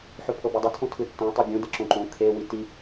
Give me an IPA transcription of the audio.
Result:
ħ ɵ pʰ ɤ b ɜ dˤ ɵ tʰ õ tʰ ɯ tː õ tˤ i bʲ õ d ɤ ǁ õ ǃ õ kʰ e w i t i

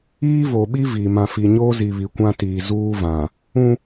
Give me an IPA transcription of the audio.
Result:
iː˦ v o˨ ɓ i˦ v i˨ m ã˨ f i˨ ɲ oː˦ z i˨ β i˨ kʷ ã˦ t iː˨ z uː˦ v ã˨ | ũ˦

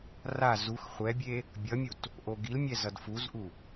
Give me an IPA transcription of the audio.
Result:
r a z u x χʷ ɛ bʲ e | bʲ ʌ mʲ u t | ʔ o ɡ i l mʲ ɛ z ʌ d f u z ʔ u

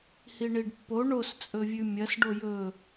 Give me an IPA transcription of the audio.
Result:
h i ɳ i ɖ pː o ɳ o s t͡sʼ ɵ vʲ ʉ mʲ ɐ s ɖ o j ɵ

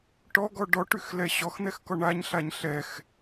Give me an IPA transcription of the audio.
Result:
ʈ ɔ ɡ ɔ ɖ ɔ ʈ y x l ɛ ɕ ɔ x n̪ ɛ x k ɔ ɳ a ɲ ɬ a ɲ ɬ ɛ x

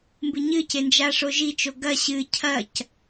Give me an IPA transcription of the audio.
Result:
m b ɨ ɲ ɨ c e n d͡ʒ a ʂ o ʒ i t͡ʃ o ɡ ɐ ɕ ɨ cʰ ɐ c

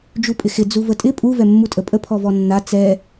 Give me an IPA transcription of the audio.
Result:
d͡ʒ u pʼ ɪ x ɪ d͡z u v ə tʼ ɪ pʼ u v ɛ mː u tʼ ə pʼ ə pʰ ɔ v ɔ nː a t͡s ɛ

